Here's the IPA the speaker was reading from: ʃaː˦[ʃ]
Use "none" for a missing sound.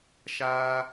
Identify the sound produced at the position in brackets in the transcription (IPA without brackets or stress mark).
none